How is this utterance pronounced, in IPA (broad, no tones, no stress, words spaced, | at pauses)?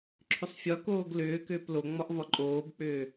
ǁʰʏsˤfʲɒkoːɡ lʏːkʏːp loŋ͡mɒʔ vɒǃʼoːbk͡pʏː